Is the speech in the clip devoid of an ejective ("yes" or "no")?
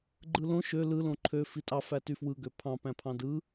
no